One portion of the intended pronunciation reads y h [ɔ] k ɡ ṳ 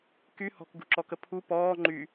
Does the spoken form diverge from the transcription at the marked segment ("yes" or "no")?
yes